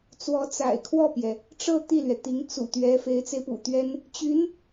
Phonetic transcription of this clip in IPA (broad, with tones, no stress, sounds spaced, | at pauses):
t͡s w ɔ˧˥ t͡s a̰˨˩ ɪ̯ kʰ w ɔ˥˩ p j ɛ˩ | ʈ͡ʂ ɤ˥˧ t̪ i˥˩ l ɥ ɛ˩ t̪ i˧˥ ŋ t͡s ṵ˨˩ t̪ ɥ ɛ˧˥ f e˧˥ ɪ̯ t͡s e˧ ɪ̯ p ṵ˨˩ t̪ ɥ ɛ˥ n | t͡ɕ y˧˥ n